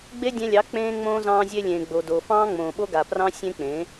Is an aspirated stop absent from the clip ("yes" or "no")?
yes